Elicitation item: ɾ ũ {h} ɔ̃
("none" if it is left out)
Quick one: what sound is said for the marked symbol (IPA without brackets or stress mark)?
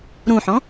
ħ